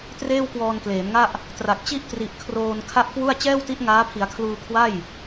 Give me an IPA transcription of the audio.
t r eː˥˩ w k w ɔː˧ n k l eː˩˦ m ŋ a˥˩ ʔ | t r a˨˩ k̚ t͡ɕ i˥˩ ʔ t r i˨˩ ʔ kʰ r oː˧ n kʰ a˥˩ ʔ k w u˥˩ a̯ t͡ɕ ɛː˥˩ w t i˦˥ ʔ ŋ aː˦˥ pʰ i˩˦ a̯ kʰ l uː˧ kʰ w a˥˩ j

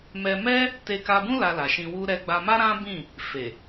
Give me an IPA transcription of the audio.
m ɛ˧ m ɛ˦ | t e˧ k a˧ b ũ˦ l a˧ l a˨ ʃ ĩ˧ w u˧ ɾ ɛ˧ ɡ͡b a˧ m a˦ ɾ ã˦ b ĩ˦˨ | f e˨

